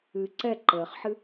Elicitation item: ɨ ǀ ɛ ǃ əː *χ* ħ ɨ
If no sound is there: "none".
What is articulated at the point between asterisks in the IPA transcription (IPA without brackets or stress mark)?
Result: χ